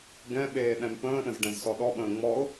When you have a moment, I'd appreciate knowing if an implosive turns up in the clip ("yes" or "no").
yes